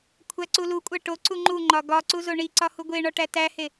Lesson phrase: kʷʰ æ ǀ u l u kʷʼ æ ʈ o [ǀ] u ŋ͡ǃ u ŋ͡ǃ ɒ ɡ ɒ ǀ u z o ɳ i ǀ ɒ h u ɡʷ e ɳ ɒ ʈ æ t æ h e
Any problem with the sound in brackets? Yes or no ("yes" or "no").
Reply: no